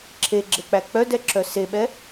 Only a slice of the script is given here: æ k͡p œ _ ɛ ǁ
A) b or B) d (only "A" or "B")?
B